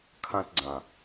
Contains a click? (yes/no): yes